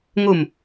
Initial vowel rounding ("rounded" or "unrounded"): rounded